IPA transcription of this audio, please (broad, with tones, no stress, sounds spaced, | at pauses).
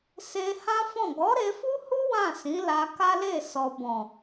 s e˧ h ã˦ f ɔ̃˦˨ ɡ ɔ˨˦ ɾ e˧ f u˦ h u˦ w ã˦˨ s ĩ˨˦ l a˧ k a˦ l e˦˨ s ɔ˨ b ɔ̃˨